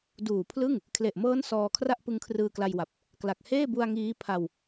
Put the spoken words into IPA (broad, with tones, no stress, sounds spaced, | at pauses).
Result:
d uː˨˩ pʰ l ɯ˥˩ ŋ | kʰ l e˨˩ ʔ m ɤː˦˥ n s ɔː˧ kʰ r a˥˩ ʔ p ɯ˧ ŋ kʰ r ɯː˧ k l a˧ j w a˨˩ p̚ | k l a˨˩ k̚ h eː˥˩ b u˧ a̯ ŋ iː˦˥ pʰ a˧ w